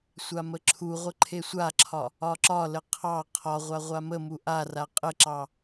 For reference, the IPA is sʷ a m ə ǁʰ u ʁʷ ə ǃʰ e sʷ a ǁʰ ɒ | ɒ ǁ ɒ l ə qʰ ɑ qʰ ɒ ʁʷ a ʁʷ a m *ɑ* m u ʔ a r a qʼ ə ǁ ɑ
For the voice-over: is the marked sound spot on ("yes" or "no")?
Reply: no